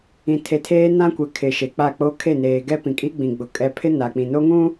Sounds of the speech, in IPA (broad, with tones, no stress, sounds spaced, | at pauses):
ĩ˨ tʰ e˨ tʰ eː˦ n ã˦ kʷ ɛ˨ kʰ ɪ˨ ʃ e˨ k͡p a˦˨ k͡p o˦ kʰ e˦˨ n eː˨ ɡ ɛ˦ p ĩ˨ kʼ i˦ ɡ͡b ĩ˨ ɡ͡b ʊ˨ kʼ ɛ˨ pʰ ɪ˦ n a˨ k͡p ĩ˨ n o˦ ŋ ũ˦